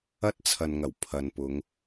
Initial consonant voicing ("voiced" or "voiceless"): voiceless